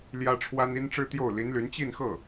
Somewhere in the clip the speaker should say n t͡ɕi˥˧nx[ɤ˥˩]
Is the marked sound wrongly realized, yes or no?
no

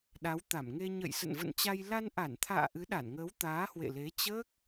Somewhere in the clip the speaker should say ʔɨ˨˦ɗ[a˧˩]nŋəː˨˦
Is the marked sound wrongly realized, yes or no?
no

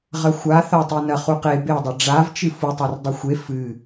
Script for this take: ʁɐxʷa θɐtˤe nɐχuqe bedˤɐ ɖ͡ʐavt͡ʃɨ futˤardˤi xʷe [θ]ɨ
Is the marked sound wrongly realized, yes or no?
yes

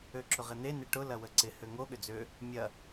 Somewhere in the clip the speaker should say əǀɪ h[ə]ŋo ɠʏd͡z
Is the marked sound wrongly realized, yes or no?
yes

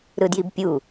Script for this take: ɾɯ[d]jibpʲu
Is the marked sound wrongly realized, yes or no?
no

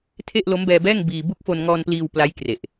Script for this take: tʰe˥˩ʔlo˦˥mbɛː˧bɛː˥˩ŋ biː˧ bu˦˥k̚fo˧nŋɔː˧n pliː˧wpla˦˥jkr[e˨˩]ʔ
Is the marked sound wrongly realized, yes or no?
no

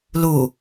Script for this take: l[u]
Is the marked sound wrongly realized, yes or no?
no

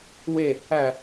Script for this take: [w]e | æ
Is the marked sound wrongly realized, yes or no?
no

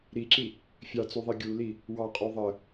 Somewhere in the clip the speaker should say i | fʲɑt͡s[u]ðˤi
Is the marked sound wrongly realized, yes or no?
no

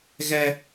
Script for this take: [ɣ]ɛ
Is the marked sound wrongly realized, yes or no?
no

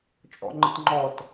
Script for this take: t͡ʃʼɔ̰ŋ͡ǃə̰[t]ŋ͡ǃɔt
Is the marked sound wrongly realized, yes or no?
no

